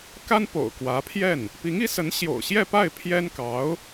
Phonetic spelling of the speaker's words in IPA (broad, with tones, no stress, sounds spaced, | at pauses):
k a˥ n p o̰˨˩ ʊ̯ k w ä˧˥ pʰ j ɛ˥˩ n | p i˧˥ ŋ i˧˥ s ə˧˥ n ɕ j o̰˨˩ ʊ̯ ɕ j ɛ˥˧ p a˥˩ ɪ̯ pʰ j ɛ˥ n k ɑ˧˥ ʊ̯